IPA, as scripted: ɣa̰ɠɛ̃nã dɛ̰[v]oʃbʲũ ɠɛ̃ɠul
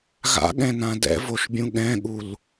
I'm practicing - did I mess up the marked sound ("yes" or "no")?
no